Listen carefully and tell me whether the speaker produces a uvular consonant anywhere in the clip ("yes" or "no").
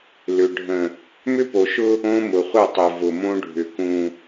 yes